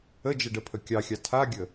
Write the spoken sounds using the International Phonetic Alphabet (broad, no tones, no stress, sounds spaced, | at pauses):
ə d͡ʒ ə ɖ ə pʰ ə kʲ ɑ xʲ ɑ tʰ a ɡʲ ə